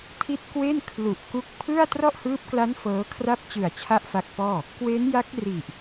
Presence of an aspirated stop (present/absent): present